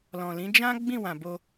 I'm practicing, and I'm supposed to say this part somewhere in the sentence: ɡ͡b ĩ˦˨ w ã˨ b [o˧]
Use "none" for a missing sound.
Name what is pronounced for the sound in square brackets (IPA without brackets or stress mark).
o˧